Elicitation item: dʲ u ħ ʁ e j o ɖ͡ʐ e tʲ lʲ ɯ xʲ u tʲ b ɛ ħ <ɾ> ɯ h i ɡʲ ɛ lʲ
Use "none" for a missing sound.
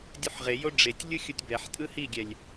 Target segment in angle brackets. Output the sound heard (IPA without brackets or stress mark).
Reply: tʼ